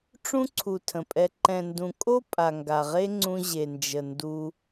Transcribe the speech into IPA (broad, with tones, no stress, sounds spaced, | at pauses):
ʈ͡ʂ ũ˦ ǀʰ u˨ tʰ ə̃˨ pʼ ɛ˧ ǃ ɛ̃˨ n d ũ˨ kʼ o˦ pʼ a˨ ŋ ɡ a˨ ʁ e˦ ŋ͡ǀ ũ˧ ʑ e˨ n d͡ʒ ə˨ n d u˧